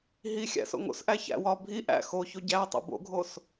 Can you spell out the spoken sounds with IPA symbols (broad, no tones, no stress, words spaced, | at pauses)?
ɦixʲæ̰ so̰ŋo̰sʔæ çæ̰wɒ bʱi ʔæ̰ xoço ɟætˤo̰ bo̰ɡʱos